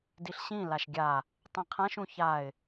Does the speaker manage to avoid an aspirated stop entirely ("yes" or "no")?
no